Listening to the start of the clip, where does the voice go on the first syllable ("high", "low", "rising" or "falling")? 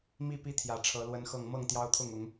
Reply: falling